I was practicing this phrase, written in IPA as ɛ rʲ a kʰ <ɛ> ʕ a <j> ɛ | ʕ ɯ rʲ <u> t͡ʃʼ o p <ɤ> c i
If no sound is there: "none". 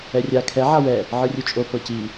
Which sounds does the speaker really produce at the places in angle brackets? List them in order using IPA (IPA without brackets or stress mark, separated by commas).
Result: ɛ, w, u, ɤ